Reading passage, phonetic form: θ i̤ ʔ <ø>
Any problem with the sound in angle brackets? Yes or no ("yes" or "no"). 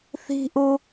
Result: yes